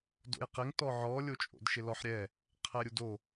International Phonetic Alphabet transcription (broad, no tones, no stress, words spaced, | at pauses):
do̰jqɪŋ tɔʕɔ lʲot͡ʃʼo̰dʃɪlɔħ ɾʲɛ | qʰɛɾʲudo